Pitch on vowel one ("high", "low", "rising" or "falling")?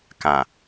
low